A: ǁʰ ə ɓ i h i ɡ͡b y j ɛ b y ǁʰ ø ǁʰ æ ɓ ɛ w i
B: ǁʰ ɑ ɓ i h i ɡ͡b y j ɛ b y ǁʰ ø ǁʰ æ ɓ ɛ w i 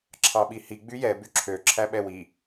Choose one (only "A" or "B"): B